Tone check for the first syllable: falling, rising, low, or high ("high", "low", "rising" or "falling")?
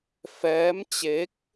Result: rising